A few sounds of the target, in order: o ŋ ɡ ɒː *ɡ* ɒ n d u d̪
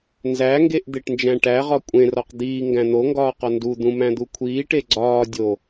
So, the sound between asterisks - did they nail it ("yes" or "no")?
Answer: no